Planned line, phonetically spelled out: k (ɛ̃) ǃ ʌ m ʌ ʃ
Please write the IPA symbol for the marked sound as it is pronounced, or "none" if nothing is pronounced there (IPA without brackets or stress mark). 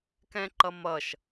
ɛ̃